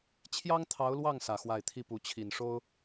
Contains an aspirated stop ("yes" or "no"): yes